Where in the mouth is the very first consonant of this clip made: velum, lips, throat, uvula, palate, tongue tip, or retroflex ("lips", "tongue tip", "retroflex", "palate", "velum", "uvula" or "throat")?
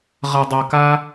uvula